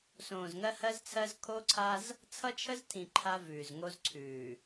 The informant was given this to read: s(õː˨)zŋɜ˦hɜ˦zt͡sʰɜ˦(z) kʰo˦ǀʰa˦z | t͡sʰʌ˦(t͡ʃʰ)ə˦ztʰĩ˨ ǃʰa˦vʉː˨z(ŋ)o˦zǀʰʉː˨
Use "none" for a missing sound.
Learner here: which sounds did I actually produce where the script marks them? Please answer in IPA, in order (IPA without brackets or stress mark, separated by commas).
õː˨, z, t͡ʃʰ, ŋ